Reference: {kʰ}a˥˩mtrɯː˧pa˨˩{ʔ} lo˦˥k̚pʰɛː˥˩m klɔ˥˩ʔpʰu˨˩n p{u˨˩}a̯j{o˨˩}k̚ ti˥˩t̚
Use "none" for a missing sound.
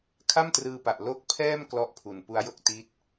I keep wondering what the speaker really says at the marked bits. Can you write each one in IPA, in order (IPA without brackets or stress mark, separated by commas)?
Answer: kʰ, ʔ, u˦˥, o˥˩